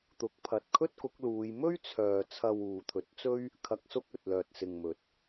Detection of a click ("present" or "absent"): absent